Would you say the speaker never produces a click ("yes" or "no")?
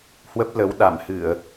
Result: yes